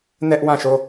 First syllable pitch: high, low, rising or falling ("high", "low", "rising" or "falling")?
high